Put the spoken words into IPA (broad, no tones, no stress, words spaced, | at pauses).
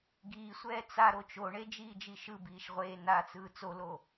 ɡiːsʷɛː t͡sa ɾot͡ʃoɳe d͡ʒiːd͡ʒiʃɯbiːʃ ʁʷeː nat͡sɯː t͡solo